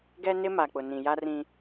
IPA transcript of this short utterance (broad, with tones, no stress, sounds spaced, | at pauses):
ɡ ɛ˦ n ɪ˦ m a˨ k͡p ʊ˨ n ĩ˨ j a˦ r ĩ˦